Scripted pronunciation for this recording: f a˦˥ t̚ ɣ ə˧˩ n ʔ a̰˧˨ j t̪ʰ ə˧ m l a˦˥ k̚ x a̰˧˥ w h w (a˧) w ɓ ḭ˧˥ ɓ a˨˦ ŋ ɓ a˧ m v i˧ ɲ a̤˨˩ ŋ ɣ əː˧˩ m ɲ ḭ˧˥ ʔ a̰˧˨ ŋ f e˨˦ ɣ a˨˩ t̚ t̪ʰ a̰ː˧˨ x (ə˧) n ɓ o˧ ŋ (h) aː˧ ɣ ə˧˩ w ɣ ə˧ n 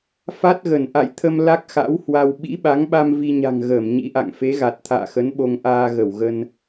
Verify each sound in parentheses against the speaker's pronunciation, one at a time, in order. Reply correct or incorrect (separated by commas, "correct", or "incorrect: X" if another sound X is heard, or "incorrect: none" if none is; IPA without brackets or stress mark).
correct, incorrect: ə˨˦, incorrect: ʔ